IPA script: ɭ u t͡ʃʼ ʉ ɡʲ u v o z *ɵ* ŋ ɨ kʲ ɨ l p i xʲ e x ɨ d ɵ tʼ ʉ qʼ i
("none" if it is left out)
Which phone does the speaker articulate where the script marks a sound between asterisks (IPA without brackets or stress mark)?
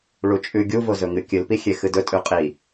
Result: ɵ